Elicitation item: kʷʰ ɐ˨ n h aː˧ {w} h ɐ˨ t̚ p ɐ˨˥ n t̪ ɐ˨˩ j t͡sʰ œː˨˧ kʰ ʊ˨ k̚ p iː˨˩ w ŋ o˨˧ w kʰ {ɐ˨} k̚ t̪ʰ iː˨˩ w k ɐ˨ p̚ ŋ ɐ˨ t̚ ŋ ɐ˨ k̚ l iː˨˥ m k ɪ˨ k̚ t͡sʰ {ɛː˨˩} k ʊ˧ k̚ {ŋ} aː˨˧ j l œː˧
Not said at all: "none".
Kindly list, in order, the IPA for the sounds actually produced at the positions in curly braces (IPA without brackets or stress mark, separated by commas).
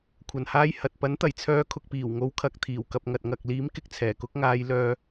j, ɐ˨, ɛː˨˩, ŋ